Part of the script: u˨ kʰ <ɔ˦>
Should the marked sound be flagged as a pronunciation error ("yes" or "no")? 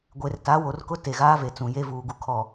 yes